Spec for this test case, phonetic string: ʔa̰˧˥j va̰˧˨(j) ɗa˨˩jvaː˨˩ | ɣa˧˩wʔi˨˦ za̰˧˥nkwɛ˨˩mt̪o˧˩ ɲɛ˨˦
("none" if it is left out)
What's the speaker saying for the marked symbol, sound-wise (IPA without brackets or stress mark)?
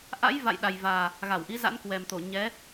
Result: j